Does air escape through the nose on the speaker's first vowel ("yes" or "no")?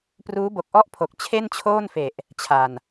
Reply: no